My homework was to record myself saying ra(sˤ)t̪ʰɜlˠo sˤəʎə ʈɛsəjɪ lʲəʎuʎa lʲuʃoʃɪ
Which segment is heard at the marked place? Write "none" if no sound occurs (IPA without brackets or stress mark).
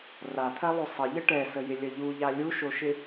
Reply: none